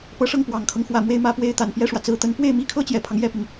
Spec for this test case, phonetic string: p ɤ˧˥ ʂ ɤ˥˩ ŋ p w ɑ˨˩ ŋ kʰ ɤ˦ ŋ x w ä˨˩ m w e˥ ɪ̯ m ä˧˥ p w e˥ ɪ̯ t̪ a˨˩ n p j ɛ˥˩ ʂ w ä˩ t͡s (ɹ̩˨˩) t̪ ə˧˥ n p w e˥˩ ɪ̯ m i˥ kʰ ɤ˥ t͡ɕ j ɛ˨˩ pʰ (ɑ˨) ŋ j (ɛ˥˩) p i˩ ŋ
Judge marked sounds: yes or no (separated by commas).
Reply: yes, no, yes